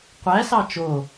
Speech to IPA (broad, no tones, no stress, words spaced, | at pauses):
qʷæsɑ t͡ʃo